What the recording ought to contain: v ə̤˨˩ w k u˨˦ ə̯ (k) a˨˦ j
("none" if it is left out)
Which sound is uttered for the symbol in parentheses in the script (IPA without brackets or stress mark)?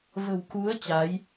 t͡ɕ